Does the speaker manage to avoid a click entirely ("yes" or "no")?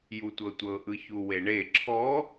no